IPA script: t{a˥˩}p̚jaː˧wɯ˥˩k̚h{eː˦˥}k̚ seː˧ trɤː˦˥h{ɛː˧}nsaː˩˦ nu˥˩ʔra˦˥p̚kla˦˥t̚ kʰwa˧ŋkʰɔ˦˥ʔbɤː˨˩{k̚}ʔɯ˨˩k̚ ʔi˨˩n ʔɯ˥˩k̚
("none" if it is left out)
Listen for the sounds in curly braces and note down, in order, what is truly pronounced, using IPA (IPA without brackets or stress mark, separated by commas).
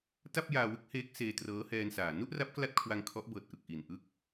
a˥˩, eː˦˥, ɛː˧, t̚